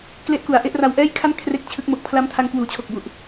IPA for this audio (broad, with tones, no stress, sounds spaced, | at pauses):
k l e˦˥ ʔ k u˩˦ a̯ ʔ e˥˩ ʔ r a˧ w ʔ ɛː˥˩ j kʰ a˥˩ n kʰ r e˦˥ k̚ t͡ɕʰ ɯ˦˥ k̚ m o˨˩ k̚ pʰ l a˦˥ m tʰ a˧ ŋ k w uː˨˩ t͡ɕʰ o˨˩ k̚ b u˨˩ ʔ